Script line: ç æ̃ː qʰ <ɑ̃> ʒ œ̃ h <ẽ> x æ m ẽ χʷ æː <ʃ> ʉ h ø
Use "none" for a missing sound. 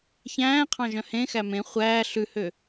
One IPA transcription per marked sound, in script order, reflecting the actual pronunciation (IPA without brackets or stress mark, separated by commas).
ɑ̃, ẽ, ɬ